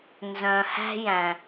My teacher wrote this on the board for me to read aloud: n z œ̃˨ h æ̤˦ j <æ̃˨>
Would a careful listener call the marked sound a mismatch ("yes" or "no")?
no